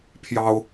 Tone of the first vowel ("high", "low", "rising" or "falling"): high